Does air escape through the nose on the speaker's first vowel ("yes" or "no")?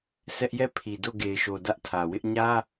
no